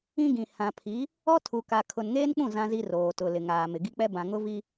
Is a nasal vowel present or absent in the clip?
present